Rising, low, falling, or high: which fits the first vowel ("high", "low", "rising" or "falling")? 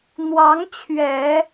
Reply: rising